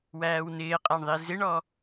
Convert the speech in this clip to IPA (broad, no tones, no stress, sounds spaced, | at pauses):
w æː w n ɪː qʼ æ ɳ ðˤ i z ɪ ɳ ɔ